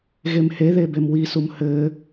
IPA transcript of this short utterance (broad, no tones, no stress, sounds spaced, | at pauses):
ɣ e m h e ð e b e m w i s u m h ɘ